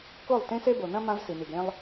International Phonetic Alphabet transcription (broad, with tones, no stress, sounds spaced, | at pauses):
k o˦˨ lˠ t ẽ˦ s e˦ b o˨ n ɐ̃˦ m ã˦ v s i˨ n i˨ ɡ ɾ ẽ˦ lˠ